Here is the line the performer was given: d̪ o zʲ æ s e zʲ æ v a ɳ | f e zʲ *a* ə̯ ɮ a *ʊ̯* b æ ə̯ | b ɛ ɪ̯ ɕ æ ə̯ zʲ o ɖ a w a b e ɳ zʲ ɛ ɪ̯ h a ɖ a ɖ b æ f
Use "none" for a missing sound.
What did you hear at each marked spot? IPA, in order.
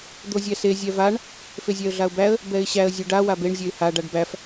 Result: æ, ʊ̯

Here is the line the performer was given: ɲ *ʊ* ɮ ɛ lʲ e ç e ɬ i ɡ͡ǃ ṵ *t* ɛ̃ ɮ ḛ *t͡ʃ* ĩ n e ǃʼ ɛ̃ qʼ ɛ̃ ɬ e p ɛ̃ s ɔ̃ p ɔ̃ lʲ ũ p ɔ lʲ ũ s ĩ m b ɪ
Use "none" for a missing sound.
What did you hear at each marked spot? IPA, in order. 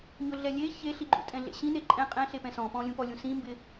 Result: ʊ, tʼ, ɕ

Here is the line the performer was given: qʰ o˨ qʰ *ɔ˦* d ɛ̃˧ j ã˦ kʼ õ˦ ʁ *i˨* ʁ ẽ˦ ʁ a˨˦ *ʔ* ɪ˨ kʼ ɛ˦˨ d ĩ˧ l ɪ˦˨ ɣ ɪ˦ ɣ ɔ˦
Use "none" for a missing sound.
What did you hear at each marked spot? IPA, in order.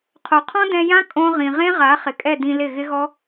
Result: ɔ̃˦, ĩ˨, χ

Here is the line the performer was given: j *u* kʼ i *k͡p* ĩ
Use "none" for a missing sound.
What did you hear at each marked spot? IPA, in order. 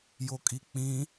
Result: o, k͡p

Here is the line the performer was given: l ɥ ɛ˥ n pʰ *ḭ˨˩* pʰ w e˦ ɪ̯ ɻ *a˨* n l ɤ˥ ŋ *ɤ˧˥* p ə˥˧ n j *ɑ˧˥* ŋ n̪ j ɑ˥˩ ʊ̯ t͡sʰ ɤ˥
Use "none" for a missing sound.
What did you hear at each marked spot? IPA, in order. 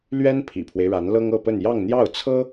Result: ḭ˨˩, a˧˥, ɤ˥˧, ɑ˥˧

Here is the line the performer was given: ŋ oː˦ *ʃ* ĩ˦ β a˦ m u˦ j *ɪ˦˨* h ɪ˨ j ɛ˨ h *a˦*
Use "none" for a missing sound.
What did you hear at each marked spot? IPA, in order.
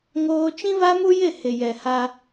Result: t͡ʃ, ɪ˦˨, a˦

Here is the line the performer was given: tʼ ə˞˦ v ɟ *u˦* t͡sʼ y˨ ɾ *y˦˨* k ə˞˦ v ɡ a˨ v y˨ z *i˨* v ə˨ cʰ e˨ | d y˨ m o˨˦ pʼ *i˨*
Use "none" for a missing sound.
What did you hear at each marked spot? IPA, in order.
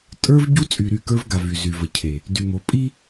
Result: u˦, y˦˨, y˨, i˦

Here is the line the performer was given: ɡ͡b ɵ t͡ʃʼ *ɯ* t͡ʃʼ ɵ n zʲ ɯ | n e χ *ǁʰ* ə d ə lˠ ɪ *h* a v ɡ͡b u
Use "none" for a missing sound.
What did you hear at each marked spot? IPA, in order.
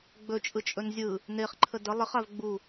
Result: ɯ, ǃʰ, χ

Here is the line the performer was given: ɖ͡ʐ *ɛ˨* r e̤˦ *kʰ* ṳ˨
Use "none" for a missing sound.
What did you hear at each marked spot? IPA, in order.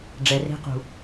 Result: ɛ˨, q

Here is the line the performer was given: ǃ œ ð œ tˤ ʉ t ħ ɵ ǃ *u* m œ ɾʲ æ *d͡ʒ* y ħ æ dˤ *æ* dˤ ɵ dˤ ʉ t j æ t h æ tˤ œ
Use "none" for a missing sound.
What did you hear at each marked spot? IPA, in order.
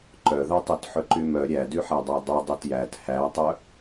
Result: y, d, æ

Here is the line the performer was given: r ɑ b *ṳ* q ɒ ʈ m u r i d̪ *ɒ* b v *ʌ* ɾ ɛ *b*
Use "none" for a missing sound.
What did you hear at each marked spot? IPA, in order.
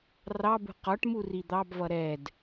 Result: ṳ, ɑ, ʌ, d

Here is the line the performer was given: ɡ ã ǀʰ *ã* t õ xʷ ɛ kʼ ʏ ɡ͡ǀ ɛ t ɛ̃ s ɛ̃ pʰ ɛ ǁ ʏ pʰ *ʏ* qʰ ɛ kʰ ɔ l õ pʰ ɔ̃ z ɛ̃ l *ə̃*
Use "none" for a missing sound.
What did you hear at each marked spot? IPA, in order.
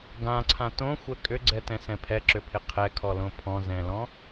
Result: ã, ɪ, ɔ̃

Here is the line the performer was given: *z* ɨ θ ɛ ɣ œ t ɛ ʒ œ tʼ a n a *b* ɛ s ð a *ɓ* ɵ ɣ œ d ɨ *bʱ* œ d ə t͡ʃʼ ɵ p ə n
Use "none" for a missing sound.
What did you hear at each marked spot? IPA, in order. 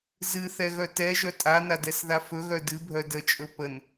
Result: z, d, f, bʱ

